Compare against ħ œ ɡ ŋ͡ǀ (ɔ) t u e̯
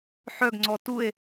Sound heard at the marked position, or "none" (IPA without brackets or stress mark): ɔ